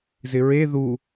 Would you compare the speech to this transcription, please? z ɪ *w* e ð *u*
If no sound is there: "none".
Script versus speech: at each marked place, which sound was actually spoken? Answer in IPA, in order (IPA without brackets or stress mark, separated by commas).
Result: ɹ, u